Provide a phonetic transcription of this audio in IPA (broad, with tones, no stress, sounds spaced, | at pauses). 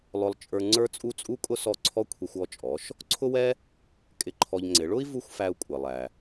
lˠ ʊ˧ lˠ t͡ʃʼ ə˞˧ ŋ͡ǀ ə˞˥ t͡sʼ u˥ t͡sʼ u˥ kʼ ʊ˥ s ɔ˥˩ ǀʰ ɔ˥ kʷʰ i˧ xʷ ɔ˥˩ t͡ʃʼ ɔ˩˥ ʃ | ǀʰ ʊ˥ w ɛ˥ | kʼ ɪ˧ ǃʰ ɔ˧ ʎ ŋ͡ǀ ɪ˩˥ ɭ ʊ˥ i̯ v u˥ xʷ f æ˧ u̯ kʷʼ ɪ˩ lˠ æ˩